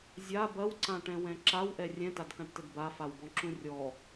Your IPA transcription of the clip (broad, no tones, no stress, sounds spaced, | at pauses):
zʲ a b ɐ w ǀ ã ʈ ɛ̃ w ɛ̃ ǁ a w ʔ ɛ rʲ ɛ̃ t a d k ã ʈ t ɘ d b a f a w b ɔ̃ ǁ ũ rʲ ɔ